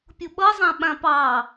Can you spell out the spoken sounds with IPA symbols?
pʲ ʊ ɓ ʌ zˤ ã ɓ ã p ɑ

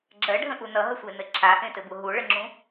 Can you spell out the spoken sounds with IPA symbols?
ɡ͡ǁ ɜ ɖʱ ə̃ ʔ u n ʌ ɦ ə sʷ e n ɘ ǁʰ a ʔ ẽ t ɘ b u ɦ u ɭ ə ŋ͡ǁ ũ

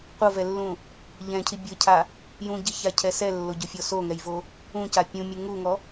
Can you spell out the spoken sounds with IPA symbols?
qʷ ɤ v ɛ lː ũ | ʎ ɛ̃ cʰ i bʲ ɤ cʰ a | j ũ ɟ i ç a cʰ ɛ s ɛ lː o ɟ o fʲ ɔ s o ŋ ɛ j v o | ũ c a pʲ ũ mʲ u ŋ u ŋ ɔ

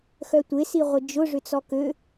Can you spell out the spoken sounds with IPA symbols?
x œ tʷ e s i ʁʷ ɪ d͡ʒ ʊ ʐ ʏ t͡s ɔ k ø

